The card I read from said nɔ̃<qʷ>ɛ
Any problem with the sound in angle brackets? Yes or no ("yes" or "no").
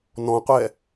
no